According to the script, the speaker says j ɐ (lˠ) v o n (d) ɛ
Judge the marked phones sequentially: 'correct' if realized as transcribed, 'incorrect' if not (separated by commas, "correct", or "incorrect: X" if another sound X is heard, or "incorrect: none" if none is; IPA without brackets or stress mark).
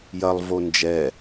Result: correct, incorrect: d͡ʒ